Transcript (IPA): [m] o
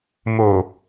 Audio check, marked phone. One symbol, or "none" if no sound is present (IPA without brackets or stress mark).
m